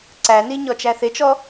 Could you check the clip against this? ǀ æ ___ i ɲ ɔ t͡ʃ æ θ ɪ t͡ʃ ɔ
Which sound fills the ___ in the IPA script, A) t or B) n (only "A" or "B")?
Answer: B